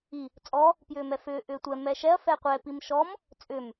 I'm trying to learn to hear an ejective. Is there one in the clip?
yes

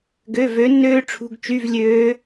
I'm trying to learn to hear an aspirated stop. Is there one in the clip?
yes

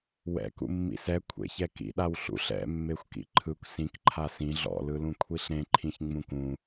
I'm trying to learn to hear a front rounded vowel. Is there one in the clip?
no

